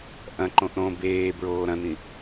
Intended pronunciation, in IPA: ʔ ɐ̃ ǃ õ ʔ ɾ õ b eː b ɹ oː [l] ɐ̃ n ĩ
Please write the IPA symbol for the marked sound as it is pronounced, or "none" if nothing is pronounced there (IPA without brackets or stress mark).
ɾ